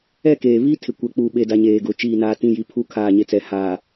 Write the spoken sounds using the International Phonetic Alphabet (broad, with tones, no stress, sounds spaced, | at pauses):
ɛ˦˨ k eː˨ β i˦ tʰ ɪ˨ kʷ ɛ˨˦ k͡p u˨ ɓ e˦ d a˦ ɲ eː˨ ɡ ʊ˨ t͡ʃ iː˦˨ n aː˦ t ĩ˦˨ j i˨ pʰ u˦ kʰ aː˦˨ ɲ e˦ t͡s ɛ˨ h aː˨